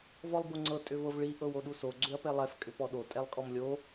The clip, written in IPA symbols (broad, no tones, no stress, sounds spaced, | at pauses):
v ɔ lˠ b o ŋ͡ǀ ɤ tʼ ʏ v ɤ v ɭ i ʔ ɤ w o ɗ u s o ɡ͡ǀ ʏ ɐ̯ p ɛ lˠ ɛ f kʼ ʏ p ɔ ɗ o tʼ ɛ lˠ kʼ ɔ m lʲ o